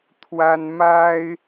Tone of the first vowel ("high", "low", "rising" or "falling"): high